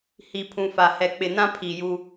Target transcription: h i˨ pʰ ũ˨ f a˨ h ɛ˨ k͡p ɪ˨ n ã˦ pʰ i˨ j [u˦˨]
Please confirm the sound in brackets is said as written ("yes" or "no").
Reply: no